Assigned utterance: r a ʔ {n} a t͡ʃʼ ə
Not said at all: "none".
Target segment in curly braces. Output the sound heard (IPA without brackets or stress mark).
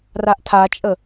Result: tʰ